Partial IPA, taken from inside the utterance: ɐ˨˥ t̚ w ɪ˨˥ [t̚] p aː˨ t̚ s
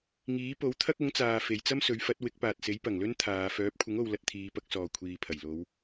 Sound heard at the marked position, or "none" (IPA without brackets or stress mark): k̚